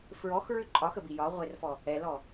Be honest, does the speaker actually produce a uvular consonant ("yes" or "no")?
yes